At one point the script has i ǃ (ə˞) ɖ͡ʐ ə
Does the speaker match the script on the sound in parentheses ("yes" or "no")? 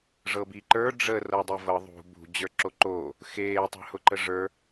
yes